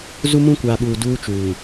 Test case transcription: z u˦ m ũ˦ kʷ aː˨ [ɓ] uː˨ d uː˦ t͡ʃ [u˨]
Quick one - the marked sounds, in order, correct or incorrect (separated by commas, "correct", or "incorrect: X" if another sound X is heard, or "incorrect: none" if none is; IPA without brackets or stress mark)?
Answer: correct, incorrect: uː˨